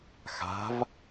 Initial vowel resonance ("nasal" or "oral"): oral